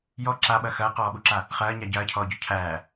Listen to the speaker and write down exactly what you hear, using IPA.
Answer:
j ɔ ǁ a ɓ ɐ x ɐː q ɔː ɓ u ǁ a | χ ɐː ɲ a ɟ ɐː cʰ ɔː ɟ ɔ cʰ æː

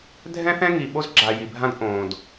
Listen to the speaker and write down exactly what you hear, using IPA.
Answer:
dʱ ɛ̃˦ θ ɛ̃˦ ŋ i˨ ɓ o˦ z ɡ͡ǁ a˨ j i˨ bʱ ã˦ d ʔ õː˨ d

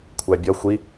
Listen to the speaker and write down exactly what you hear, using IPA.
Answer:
kʷʰ æ bʲ ʌ xʷ i

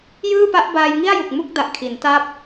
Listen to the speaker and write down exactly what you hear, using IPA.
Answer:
j ɯː˥˩ p a˦˥ ʔ b aː˧ j ŋ i˥˩ a̯ j u˨˩ k̚ m u˥˩ k̚ d a˨˩ ʔ kʰ i˩˦ n t aː˥˩ p̚

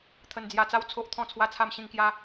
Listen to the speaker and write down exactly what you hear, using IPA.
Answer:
t̪ʰ ə˧ n d͡z j a˧ t͡s a˦ w t͡sʰ o˦ ʔ t̪ʰ ɔ̃˥˧ t͡sʰ w a˥˧ t͡sʰ a˥˧ m ɕ ĩ˥˧ ŋ k j a˦

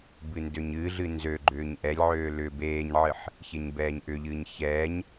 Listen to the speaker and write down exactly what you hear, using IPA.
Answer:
b ɨ n d ø ɲ ɨ ɮ ɨ n z ø ɡ͡ǃ ʏː ɲ ʔ ɛ lʲ ʕ øː l ʏ b eː ɲ ʕ ɨ ħ | ç e ɲ b ɛː ɲ ʔ ʏ ʎ ɨː ɲ ç ɛː ɲ

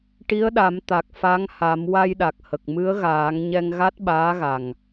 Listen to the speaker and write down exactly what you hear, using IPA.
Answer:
ʈ i˧˥ ə̯ ɗ a˨˩˦ m t̪ a˨˩ k̚ f a˧˥ ŋ h a˨˩˦ m w a˧ j ɗ a˨˩ k̚ h ə˨˩ k̚ m ɨ˧˥ ə̯ ɣ aː˨˩˦ ŋ ɲ ɛ˧ ŋ ɣ a˦˥ t̚ ɓ aː˧˥ ɣ a˨˩ ŋ

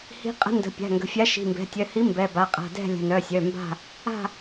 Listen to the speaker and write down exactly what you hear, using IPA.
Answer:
h i̤˨˥ qʼ ə̤˨˥ n d ə̤˩˧˩ pʲ a̤˩˧˩ ŋ ɡ ə̤˩˧˩ fʲ a˨˥ ʃ i̤˩˧˩ m b ɛ̤˩˧˩ tʲ œ˩˧˩ h i˨˥ m b ɛ˩˧˩ b a˩˧˩ qʼ a̤˩˧˩ d ɛ̤˦˨ lʲ ə̤˩˧˩ n œ˩˧˩ sʲ œ˩˧˩ m b a̤˦˨ | a̤˦˨

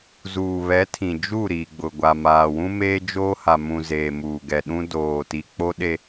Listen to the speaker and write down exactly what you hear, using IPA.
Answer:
z uː˨ β ɛ˨˦ tʰ ĩ˨ d͡ʒ u˦˨ ɾ iː˨ ɡ͡b ʊ˨ ɡʷ a˨ m aː˨ w ũ˦ m eː˦ d͡ʒ oː˦ h a˨ m ũ˨ z eː˨ m uː˨ ɡ ɛ˨ ɗ ũ˦ d oː˨ t i˨ k͡p o˦ ɗ e˦

